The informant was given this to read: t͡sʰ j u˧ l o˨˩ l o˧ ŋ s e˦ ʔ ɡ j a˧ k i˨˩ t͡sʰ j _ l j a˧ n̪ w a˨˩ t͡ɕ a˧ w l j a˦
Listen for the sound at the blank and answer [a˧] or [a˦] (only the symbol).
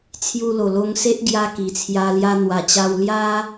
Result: a˧